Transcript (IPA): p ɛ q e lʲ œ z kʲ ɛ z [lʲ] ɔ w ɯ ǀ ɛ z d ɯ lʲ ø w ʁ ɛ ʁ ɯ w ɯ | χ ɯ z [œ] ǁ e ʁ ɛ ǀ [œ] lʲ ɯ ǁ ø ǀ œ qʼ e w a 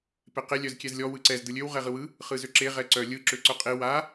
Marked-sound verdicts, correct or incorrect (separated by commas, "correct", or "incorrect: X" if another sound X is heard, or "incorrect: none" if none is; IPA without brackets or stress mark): correct, incorrect: ø, correct